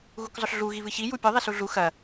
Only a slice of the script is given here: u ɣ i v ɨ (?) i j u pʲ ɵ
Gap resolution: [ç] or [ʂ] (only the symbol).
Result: ç